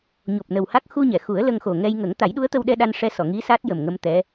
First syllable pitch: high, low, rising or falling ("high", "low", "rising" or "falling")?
low